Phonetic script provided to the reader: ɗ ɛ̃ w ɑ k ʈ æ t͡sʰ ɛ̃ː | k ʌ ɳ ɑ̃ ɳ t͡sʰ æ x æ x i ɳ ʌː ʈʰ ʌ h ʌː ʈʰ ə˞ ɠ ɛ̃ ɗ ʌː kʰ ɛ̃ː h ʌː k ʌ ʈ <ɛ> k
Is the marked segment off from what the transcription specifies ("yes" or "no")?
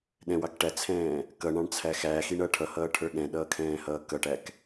yes